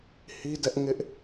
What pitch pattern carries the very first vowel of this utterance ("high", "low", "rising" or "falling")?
high